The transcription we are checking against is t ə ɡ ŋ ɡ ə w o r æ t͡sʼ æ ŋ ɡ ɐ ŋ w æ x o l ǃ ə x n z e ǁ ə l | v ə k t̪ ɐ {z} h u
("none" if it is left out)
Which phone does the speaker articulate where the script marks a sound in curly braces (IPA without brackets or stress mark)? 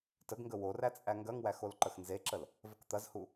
z